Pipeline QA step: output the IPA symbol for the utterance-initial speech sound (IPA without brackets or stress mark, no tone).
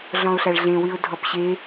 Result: ɮ